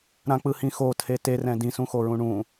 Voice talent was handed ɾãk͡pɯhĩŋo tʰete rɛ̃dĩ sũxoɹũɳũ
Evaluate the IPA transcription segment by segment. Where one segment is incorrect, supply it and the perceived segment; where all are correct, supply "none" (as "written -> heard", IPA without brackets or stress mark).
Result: ŋ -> x